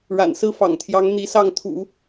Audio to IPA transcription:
ɻa̰˨˩nsɹ̩˥˩fɑ̰˨˩ŋt̪ʰjɑ˧˥ŋ n̪i˧˥sɑ˥˩ŋ t̪ʰṵ˨˩˦

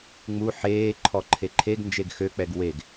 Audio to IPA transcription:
ŋ͡mu ħeː ǃʰɔǃʰeǃʰeɡnd͡ʒeɡ xøk͡pɛɡ weɡ

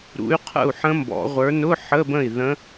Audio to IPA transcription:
ɾṵ˨˥y̯qʰə̰˥˩u̯ ħə̃˦˥mbɔ̰˨˩˦ʁʷə˞˨˥ nʊ˧˥˧ ħə˧˥˧bə̃˥˩i̯ ðə̃˦˥

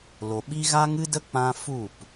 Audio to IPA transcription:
lo˨ɓi˦ ɣa˦ŋɨ˦də˦ k͡pã˦ fu˦˨p

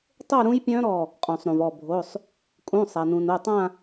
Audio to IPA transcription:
tˤo˥˧ɾũ˦˥jpʲœ̃˦˥ɾɔ˧˩ | qʼũ˩sˤɾũ˩vɔ˧˩ bʱo˩˧˩sˤ | kʼũ˩˧˩sˤa˩nũ˩n o˩˧˩tˤã˥˧

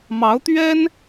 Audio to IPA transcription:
mɑ˧˥ʊ̯t̪ɥɛ˥n

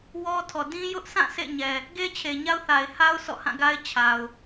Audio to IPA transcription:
wɔ˦tʰɔ˨ dĩ˦ jʊ˦ʔsʰã˦˨ sʰḛ˦˨ɲɛ˨ | ɡe˦t͡ɕʰe˨ ɲa˦ʊ̯θa˨ɪ̯ha˦ʊ̯ sɔ̰˦˨hã˦˨ɡa˦ɪ̯ t͡ɕʰa˨ʊ̯

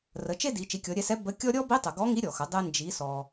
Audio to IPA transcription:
rə˩˧t͡ʃe˥di˩˧ t͡ʃi˩˧kʲɔ˩˧ɾʲɛ˧sɛ˧˥ bə˧˥kʲɔ˥ ɾʲɔ˥ bi˧˥tˤə˩ ɡɔ˧˥ŋi˧˥ɾʲɔ˩xə˩˧ dˤe˥nd͡ʒi˧˥sɔ˧

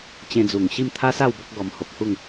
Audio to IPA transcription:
t͡ɕẽ˧d͡zu˨˩ŋ ɕi˥˧m t̪ʰa˦sa˥˧w bɔ˦k̚ɡɔ˧m ho˨p̚hu˥˧ŋ

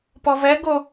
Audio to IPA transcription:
pɔvɛ ɡo

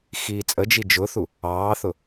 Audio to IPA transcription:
xiːt͡sʼəd͡ʒi d͡ʒʊθu | ɑːθʊ

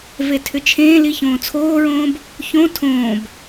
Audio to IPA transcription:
vetʰʏt͡ʃʰẽːli çõːt͡sʰoːɹõːb | çõ tʰõːb

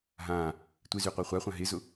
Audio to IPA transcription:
ɦãː | tʷɪzyqʷa χʷaχʷã ɦɪzʊ

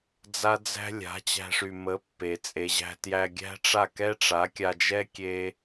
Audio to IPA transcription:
d͡za˦d͡zæ̤˦ lʲa̤˨˦ t͡ɕæ̤˧ʂy˨mə˨˦ pːe˨t͡sʼe˨ʑæ̤˧ tjæ˧ɡʲæ̤˦ʈ͡ʂa˦˨ kɛ˦ʈ͡ʂa˨˦kʲa˧d͡ʒɛ˦ kʲe˦

